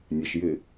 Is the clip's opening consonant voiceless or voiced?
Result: voiced